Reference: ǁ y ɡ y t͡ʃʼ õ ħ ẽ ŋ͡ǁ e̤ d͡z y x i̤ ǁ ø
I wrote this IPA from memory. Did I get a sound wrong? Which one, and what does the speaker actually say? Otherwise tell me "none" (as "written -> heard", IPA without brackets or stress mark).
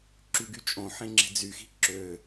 none